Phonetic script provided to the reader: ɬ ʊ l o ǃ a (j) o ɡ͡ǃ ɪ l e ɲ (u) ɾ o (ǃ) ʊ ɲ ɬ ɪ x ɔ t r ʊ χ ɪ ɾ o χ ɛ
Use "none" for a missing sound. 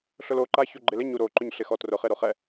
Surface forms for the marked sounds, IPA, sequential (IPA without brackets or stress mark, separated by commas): ç, u, ǃ